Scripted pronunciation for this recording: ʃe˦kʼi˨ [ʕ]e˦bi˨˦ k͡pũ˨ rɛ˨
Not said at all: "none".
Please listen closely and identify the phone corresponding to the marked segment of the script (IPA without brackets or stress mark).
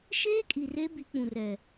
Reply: r